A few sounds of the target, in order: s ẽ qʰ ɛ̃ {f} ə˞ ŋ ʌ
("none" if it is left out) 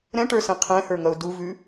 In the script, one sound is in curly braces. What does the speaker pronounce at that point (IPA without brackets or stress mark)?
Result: h